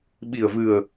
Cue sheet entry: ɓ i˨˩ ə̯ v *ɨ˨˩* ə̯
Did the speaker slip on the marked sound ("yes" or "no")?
no